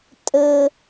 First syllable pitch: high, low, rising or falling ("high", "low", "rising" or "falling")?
high